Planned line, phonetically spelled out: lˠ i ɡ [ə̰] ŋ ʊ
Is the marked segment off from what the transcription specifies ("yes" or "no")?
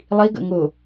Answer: no